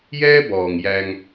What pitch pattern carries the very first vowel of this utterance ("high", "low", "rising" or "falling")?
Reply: high